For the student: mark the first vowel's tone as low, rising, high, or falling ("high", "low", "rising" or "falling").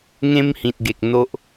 high